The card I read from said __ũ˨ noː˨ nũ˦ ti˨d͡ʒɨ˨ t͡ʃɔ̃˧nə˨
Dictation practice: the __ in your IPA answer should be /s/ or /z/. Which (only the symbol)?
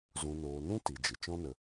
z